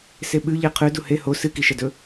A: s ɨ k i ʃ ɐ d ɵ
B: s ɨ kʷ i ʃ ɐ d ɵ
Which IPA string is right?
A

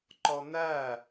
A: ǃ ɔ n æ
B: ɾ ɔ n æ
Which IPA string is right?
A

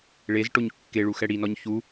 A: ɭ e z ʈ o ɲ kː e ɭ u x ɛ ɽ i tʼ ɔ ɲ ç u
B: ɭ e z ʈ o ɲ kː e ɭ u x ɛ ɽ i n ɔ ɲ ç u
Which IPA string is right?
B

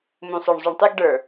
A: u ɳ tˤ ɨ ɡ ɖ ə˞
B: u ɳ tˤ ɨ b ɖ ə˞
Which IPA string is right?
A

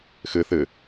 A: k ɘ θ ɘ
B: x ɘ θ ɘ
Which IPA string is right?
B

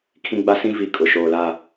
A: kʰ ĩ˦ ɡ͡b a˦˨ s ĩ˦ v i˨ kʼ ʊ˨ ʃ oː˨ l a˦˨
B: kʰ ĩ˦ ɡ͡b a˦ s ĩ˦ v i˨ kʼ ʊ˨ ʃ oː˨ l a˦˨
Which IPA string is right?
B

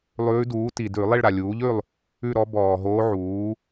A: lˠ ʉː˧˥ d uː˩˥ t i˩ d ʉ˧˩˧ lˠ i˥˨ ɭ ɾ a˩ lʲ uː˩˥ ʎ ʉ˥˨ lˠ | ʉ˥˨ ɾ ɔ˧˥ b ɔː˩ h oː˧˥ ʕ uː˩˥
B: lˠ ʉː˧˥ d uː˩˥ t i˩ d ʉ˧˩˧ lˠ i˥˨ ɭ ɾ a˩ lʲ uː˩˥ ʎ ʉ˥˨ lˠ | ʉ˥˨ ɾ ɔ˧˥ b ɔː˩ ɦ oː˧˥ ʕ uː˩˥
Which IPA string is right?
B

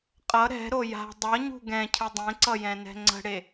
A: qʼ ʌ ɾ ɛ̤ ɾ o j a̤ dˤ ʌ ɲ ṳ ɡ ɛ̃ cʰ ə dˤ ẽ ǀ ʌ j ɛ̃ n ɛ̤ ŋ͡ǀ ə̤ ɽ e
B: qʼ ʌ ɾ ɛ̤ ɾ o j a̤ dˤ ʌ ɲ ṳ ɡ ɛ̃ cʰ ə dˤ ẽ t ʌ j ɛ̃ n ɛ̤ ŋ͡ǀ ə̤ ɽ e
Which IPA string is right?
A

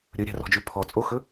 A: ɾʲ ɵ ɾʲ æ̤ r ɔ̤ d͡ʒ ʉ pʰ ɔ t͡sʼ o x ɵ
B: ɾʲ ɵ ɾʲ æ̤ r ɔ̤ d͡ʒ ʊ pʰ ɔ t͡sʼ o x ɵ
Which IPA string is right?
A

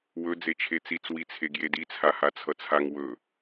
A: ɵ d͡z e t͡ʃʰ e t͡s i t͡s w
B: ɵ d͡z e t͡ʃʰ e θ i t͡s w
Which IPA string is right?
A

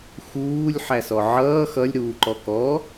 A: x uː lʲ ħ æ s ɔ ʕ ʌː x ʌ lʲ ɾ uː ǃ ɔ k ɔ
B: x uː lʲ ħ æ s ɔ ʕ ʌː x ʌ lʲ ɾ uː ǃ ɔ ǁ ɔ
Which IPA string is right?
A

